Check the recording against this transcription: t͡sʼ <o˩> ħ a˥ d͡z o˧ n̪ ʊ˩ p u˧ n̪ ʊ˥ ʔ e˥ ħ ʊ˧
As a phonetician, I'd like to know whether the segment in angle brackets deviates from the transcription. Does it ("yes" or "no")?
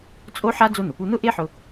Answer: yes